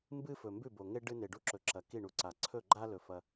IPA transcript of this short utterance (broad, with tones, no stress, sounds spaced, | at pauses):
m b ɨ˦ f ɵ˨ m b ʉ˦˨ b o˨ ŋ e˦ ɖ ɨ˦ n e˨ ɖ u˦ ǁ ɵ˨ ǁ ɐ˨ k i˦˨ ɳ u˨ ǀ a˨ ǀʰ ɵ˦˨ ɡ͡ǃ a˦ l ɵ˨ f ɐ˦